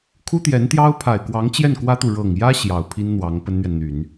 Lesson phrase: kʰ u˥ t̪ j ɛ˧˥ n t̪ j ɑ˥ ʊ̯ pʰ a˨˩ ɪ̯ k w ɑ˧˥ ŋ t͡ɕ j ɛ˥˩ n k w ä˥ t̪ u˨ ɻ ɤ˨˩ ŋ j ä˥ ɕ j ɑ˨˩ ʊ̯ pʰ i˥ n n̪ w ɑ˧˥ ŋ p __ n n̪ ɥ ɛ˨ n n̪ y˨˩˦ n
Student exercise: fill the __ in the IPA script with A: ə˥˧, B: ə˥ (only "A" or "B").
B